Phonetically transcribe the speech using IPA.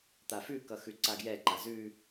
t̪ a f ʉ k ʌ x ʉ ǀ a ɡ j ɛ ǃ a z ʉ

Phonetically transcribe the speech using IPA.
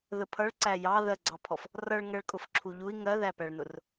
ð ə pʰ ʌ ɭ ǀ æ j ɑ ð ɜ ɡ͡ǀ ɑ pʰ ɔ f | r ʌ ɭ ŋ ɜ ɭ kʼ ʊ f ǁʰ u ʎ u i̯ ŋ ɜ ð æ p æ ɭ n ʊ r

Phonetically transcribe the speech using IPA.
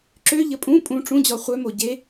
ǁ ø ʎ ə pʼ ũ pʼ ũ ʈ͡ʂ ũ d͡ʑ ɔ χʷ œ m o ɟ e

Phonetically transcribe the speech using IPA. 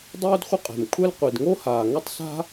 dˤ oː˥ d χʷ ə˥ qʼ ɛ̤˩ m kʷʰ ɛ˥ l qʷ i˩ d ŋ o˥ h aː˩ ŋ ə˥ tˤ s a̤˥

